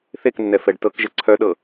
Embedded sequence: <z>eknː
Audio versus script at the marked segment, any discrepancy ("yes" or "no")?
yes